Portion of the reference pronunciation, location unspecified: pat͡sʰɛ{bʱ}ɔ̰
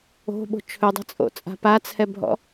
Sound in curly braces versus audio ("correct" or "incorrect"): correct